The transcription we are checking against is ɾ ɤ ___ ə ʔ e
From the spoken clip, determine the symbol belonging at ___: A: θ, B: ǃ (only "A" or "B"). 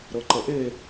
B